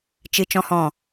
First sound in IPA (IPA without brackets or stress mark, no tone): t͡ʃ